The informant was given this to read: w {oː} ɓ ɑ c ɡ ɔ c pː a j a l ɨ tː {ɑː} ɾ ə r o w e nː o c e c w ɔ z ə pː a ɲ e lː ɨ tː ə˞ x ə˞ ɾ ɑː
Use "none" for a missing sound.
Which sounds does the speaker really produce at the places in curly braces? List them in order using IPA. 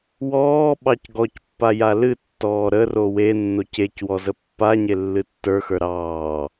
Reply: ɔː, ɔː

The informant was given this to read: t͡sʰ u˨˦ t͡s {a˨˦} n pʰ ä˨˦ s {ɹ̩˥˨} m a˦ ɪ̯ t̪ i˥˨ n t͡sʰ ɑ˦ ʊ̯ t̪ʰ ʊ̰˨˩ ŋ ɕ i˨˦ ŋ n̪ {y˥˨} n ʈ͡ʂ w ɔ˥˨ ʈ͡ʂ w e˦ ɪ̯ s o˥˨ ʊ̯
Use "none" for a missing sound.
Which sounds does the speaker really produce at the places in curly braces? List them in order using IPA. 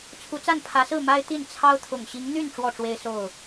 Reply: a˥˨, ɹ̩˥˨, y˥˨

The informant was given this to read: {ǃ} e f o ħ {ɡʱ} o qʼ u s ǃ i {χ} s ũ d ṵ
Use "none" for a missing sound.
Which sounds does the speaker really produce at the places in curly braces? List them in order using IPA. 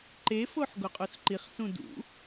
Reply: ǃ, ɡ, χ

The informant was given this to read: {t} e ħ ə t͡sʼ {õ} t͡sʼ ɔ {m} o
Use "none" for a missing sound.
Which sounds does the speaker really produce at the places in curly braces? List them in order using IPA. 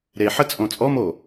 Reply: ɾ, õ, m

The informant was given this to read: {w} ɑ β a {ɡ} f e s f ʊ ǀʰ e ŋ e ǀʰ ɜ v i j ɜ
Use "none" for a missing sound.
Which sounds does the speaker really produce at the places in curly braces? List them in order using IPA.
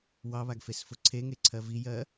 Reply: w, ɡ

